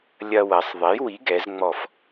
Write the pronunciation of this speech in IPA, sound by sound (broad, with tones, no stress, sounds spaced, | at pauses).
lʲ ɐ˧ w ɐ˩˧ sˤ ðˤ e˨˥ j w i˨˥ ɡ ɛ˩˧ z ŋ͡m ɔ˧˩ f